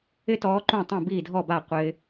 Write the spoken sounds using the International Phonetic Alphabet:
ɪ˦tɔː˨˦ ǃũ˥˩tˤũ˥˩ biː˥˩dʱɔ˥˩ba˥˩ qʷɪː˦

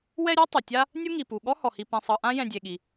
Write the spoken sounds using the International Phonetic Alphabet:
wɛ˦ɾʲɤ˥ tˤu˩tʲa˥ | nʲu˥ŋi˩ pu˩ ɠɔ˥hɔ˩hi˨ pɛ̃˨sˤɤ˨ʔã˥ jɛ̃˨dʲe˩ɠi˩

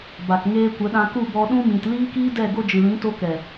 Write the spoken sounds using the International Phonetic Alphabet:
ba˨kŋeː˧ kʷə˨˦ɗã˧ku˦˨bɔ˧ ɗũ˧mĩ˨t liː˦kiː˦dɛ˦˨ ɡo˧d͡ʒɨ˨lĩ˨˦ to˧ kɛ˨

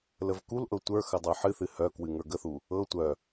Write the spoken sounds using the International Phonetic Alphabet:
ləvkulʔɤ tʷə˞xə dˤə˞ħɨθɨ hœkwɨ ŋə˞ɡəθu | ɤ tʷœ

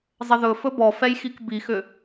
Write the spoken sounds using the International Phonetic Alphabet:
zˤəðɵ fɵbɔfɛjxik bixʏ

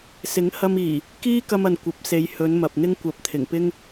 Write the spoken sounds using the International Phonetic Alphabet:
sɪ˨˥ŋhɐ˧miː˨˩ | kiː˥kɐ˧mɐ˨n kʷɐ˨˥p̚se˨˧j hɵ˨˧n mɐ˨p̚n̪ɪ˥ŋ kʷɐ˨˥p̚ t̪ʰɪ˨˩ŋpɪ˥ŋ

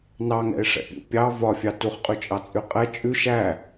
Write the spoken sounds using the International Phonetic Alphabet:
nɑŋɛ̰ɪ̯ʂɛ̰pʲṵ pʲɑ vɒfʲɑ tuχqʼʉt͡ʃʼɑt͡sʼʉ qʼɛ t͡ʃʼʉʃ æ

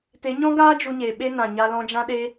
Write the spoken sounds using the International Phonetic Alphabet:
te˨˦ɲɔ̃˦ɡaː˦ d͡ʒu˧ɲeː˨ ɓe˧nã˨ ɲa˧lɔ̃˧d͡ʒã˦ ɗe˦

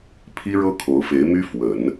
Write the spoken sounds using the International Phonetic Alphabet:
pʰi˥ɻɤ˥ kʰo˧˥ʊ̯fe˧˥ɪ̯my˥ fwə˨˩˦n

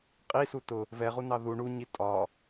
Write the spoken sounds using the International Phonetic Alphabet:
qʼisu tʊ | vɛʁunɑ ðu ɳuɲi tʼɒ

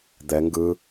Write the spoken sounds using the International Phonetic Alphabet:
d̪ɛ ŋɡɯ

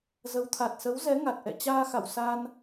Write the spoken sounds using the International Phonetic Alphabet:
zə˨˦wt̪ʰa˨˩t̚ sə˨˦wzɛ˨˦ ŋa˨˩t̚ʔɛ̰˧˨ t͡ɕaː˧xa̰˧˨w sa˧n

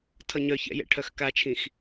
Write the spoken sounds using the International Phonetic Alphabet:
tʰʌɲœçɛ̰ jɛ̰ʈʰœxkat͡ʃʰĩx

